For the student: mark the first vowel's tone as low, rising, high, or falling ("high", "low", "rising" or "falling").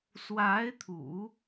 rising